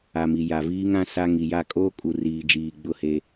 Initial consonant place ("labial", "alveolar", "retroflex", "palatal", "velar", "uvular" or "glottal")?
labial